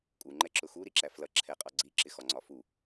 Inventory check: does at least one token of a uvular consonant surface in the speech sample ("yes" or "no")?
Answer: yes